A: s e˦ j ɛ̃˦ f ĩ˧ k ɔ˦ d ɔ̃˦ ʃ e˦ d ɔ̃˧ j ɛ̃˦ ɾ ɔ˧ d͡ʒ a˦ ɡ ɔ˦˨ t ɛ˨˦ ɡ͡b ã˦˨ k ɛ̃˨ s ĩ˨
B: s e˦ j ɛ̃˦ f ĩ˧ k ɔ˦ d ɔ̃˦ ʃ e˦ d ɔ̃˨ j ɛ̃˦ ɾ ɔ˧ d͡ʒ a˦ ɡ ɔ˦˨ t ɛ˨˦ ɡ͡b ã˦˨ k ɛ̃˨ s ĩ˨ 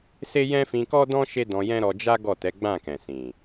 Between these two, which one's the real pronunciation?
A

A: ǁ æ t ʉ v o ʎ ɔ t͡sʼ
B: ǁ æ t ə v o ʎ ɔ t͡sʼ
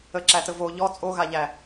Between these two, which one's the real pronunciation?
B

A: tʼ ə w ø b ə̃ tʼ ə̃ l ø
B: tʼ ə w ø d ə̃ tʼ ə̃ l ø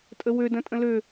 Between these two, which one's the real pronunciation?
B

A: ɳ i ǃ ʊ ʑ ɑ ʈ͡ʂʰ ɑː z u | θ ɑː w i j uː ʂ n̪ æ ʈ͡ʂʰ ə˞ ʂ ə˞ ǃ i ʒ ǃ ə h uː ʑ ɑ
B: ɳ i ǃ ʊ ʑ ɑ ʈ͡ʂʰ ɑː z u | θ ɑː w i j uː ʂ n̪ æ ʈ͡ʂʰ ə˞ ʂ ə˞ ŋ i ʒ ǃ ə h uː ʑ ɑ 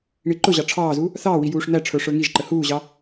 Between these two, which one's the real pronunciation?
B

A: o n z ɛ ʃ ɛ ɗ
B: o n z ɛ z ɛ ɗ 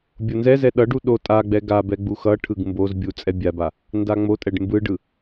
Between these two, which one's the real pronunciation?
B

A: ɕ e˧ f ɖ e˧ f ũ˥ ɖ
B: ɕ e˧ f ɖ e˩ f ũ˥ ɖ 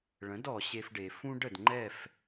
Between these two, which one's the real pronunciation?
B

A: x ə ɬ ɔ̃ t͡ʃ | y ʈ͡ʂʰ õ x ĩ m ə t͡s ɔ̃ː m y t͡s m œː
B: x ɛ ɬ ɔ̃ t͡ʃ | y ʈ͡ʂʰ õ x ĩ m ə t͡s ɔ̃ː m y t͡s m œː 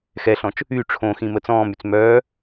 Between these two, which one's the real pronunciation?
B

